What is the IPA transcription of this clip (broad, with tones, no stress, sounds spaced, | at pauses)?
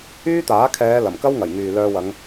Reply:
yː˥ t̪ aː˨˥ kʰ ɛː˨˧ l ɐ˨˩ m k ɐ˥ w ŋ ɐ˨˩ j ŋ yː˨ l œː˧ w ɐ˨˧ ŋ